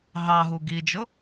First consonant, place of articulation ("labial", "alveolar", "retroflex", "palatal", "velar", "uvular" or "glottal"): glottal